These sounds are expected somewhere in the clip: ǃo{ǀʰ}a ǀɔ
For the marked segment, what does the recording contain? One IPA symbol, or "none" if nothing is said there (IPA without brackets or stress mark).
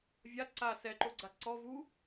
ɡ͡ǀ